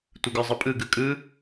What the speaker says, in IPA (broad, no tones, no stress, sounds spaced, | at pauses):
tʷ ɯ ɡ ə˞ zˤ ɯ pʼ ɯ ɡ ɯ kʼ ɯ